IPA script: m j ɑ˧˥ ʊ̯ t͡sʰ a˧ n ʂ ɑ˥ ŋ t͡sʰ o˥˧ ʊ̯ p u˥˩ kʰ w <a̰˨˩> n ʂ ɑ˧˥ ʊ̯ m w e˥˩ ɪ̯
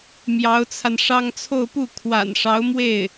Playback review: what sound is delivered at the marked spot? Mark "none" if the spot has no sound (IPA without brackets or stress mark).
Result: a̰˨˩